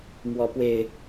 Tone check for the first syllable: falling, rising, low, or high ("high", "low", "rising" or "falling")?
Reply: rising